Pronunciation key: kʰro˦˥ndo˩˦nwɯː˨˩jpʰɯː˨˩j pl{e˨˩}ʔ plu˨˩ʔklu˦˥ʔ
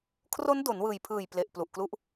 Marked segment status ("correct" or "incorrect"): correct